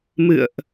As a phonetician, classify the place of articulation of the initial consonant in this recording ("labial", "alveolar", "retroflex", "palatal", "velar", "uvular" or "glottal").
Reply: labial